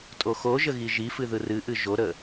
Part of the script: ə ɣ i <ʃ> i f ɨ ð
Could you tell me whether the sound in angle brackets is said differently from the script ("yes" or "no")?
yes